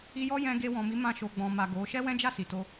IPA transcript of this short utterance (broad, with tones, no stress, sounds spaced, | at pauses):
i˧ j ɔ˦ j ɛ̃˧ ɡ e˧ w ɔ̃˨ m i˨˦ m ã˧ ʃ o˨ ɡ͡b ɔ̃˨ m a˨ ɡ o˨˦ ʃ ɛ˦ w ɛ̃˦ d͡ʒ a˦˨ s i˨ t o˧